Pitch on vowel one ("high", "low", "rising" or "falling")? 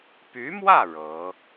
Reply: rising